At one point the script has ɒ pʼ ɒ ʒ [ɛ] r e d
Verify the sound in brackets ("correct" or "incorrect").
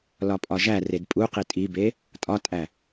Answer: incorrect